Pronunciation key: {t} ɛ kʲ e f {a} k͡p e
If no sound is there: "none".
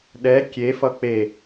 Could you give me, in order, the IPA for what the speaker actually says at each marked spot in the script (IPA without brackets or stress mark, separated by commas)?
ɗ, ʌ